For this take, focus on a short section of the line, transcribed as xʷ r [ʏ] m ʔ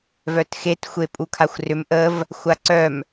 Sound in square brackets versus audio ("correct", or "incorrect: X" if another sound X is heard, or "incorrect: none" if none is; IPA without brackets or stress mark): correct